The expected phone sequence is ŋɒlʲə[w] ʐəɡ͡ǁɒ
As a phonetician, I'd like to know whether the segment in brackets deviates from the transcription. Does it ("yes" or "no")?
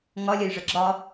yes